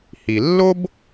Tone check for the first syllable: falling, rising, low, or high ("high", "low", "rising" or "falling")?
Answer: low